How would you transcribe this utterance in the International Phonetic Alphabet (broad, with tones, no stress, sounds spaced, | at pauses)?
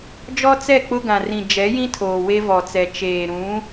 d͡ʒ ɔ˦ t͡s ɛ˦˨ k͡p ʊ˦ ɡ ã˨ r ĩ˨ d͡ʒ ɛ˨˦ j ĩ˦ tʰ oː˨ w e˦ v ɔ˨ t͡s ɛ˨ t͡ʃ eː˨ ɾ ũ˨˦